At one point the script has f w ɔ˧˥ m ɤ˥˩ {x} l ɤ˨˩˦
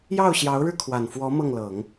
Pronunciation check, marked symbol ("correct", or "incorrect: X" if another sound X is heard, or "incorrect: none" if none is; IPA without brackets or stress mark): incorrect: ŋ